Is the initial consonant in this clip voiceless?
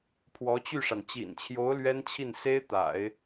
yes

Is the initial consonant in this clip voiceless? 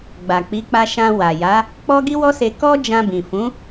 no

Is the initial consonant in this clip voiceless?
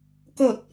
yes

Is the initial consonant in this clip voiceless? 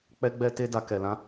yes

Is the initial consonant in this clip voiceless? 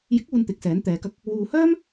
no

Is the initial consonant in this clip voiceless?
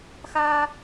yes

